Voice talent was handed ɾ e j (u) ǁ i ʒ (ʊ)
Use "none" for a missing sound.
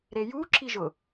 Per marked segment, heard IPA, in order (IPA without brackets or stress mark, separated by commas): u, ʊ